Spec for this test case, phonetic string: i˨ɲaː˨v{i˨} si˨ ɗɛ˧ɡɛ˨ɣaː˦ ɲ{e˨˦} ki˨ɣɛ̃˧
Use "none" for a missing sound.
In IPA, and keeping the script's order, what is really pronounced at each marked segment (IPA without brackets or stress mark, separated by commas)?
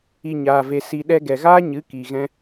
e˨, ɨ˨˦